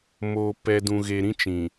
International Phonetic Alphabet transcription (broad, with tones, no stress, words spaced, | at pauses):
moː˨ pɛ˨dũ˨ɣe˨ ɾĩ˦t͡ʃĩ˨